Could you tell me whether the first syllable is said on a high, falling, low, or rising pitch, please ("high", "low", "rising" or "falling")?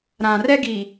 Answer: low